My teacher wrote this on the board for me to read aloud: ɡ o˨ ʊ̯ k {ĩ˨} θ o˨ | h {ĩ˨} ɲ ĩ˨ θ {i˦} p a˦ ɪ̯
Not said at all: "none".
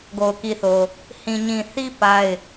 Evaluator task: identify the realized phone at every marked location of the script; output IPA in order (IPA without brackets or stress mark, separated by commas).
i˨, ĩ˨, i˦